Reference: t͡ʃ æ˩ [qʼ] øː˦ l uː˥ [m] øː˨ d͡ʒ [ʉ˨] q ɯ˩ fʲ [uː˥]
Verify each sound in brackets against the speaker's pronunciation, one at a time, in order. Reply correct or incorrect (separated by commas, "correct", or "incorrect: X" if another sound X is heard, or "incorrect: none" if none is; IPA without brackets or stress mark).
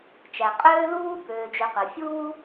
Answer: correct, incorrect: b, incorrect: ø˨, incorrect: uː˦